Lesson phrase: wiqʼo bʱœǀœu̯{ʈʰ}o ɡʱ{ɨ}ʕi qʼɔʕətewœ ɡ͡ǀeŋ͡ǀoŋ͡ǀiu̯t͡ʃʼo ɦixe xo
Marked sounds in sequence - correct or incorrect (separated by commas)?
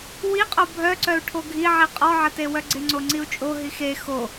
correct, incorrect